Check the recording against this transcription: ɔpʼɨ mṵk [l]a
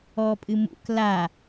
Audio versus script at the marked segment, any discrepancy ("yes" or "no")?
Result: no